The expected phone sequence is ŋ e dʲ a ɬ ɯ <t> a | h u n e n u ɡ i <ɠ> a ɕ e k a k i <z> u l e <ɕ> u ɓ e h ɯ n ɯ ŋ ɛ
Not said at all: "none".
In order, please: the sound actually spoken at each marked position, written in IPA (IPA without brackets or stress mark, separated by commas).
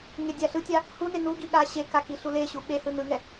tʲ, ɠ, ɬ, ɕ